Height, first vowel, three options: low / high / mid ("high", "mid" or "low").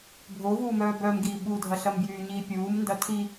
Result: mid